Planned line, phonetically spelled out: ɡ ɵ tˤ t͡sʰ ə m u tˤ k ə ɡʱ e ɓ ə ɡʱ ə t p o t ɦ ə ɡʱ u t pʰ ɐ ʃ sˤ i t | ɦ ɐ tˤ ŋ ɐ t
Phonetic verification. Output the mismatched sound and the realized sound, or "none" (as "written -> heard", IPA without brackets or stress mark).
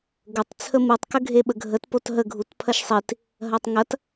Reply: none